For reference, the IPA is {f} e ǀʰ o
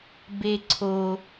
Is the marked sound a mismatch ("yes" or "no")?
yes